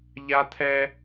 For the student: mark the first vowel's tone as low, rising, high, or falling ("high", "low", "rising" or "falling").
high